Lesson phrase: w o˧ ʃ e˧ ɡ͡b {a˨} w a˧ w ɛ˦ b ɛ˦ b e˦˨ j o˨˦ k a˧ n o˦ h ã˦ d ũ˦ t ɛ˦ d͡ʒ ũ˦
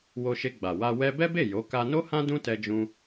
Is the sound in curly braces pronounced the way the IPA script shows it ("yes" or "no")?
yes